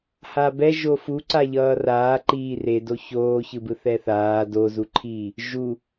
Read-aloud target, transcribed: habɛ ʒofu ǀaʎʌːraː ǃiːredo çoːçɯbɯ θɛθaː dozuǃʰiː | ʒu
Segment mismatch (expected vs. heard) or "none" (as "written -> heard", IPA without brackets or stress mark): none